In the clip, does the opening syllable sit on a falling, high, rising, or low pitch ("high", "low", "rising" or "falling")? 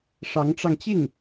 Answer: rising